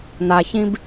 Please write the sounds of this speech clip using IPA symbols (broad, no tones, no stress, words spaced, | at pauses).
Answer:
naçĩb